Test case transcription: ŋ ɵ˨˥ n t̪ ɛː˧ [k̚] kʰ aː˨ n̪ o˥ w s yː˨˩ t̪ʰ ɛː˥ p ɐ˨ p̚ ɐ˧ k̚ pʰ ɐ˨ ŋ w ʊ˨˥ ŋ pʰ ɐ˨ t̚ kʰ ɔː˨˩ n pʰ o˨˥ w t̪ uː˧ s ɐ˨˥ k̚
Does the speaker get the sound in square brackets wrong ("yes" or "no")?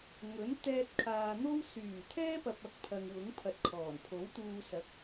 yes